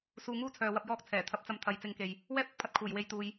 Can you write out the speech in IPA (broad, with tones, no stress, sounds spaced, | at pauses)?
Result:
s uː˧ ŋ uː˥ t͡sʰ œː˨ w ɐ˧ p̚ j ɔː˥ k̚ t͡sʰ ɛː˨˩ t̪ʰ ɐ˧ p̚ t͡s ɐ˧ m t̪ʰ ɐ˨˧ j t͡s ɪ˨ ŋ k e˨ j | w ɛː˥ p̚ ʊ˧ k̚ pʰ ɐ˧ t̚ kʰ uː˨˩ j w e˧ j t̪ uː˨ j